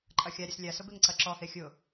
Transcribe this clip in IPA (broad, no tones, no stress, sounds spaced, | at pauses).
ǃʼ ɐ xʲ a ɾʲ ɐ s lʲ a s ʊ b e ŋ ǀ ɐ ǁ ɔ h e xʲ ʊ